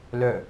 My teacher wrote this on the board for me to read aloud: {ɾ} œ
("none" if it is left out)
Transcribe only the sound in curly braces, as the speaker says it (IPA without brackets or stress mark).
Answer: l